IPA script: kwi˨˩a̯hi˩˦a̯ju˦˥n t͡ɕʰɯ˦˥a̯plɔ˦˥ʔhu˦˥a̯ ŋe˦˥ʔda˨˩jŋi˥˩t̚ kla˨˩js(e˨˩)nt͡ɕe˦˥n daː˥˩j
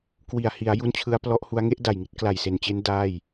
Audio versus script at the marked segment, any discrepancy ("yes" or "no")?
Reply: no